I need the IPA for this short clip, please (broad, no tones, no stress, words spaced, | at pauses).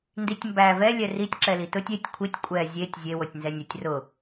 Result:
nditʲmbæ vɛ lʲɛritʲ ǁɛlitʊtʲ etʲ kʷʰitʲ kʷʼɛ zʲetʲ zʲe wotʲnzɛnʲʊtʲ rʊ